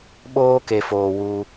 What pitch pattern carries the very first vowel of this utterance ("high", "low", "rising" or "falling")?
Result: high